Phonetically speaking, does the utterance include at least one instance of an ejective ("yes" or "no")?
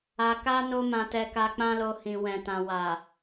no